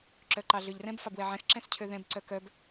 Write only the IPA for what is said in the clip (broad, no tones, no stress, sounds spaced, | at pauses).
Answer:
ǁ œ ǃ ɑ ɮ ø ʎ r ɛ̃ b f ɑ b w ɛ ʕ ɛ̃ x ǁ ɛ̃ s cʰ ø ð ɛ̃ b ǀ œ k œ b